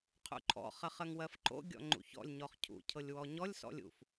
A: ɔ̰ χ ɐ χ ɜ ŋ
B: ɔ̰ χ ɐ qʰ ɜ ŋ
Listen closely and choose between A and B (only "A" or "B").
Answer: A